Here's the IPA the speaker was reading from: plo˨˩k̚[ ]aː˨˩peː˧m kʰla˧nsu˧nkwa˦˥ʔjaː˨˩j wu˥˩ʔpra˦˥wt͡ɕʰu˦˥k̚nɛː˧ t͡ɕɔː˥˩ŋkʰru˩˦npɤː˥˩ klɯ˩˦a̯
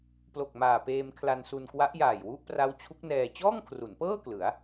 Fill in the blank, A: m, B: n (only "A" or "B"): A